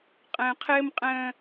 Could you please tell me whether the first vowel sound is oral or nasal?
nasal